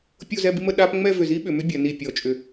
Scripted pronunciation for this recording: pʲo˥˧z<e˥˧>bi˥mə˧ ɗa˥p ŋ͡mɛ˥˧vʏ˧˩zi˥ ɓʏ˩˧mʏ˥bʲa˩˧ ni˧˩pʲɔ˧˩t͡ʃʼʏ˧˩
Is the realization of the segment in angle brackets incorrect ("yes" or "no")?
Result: yes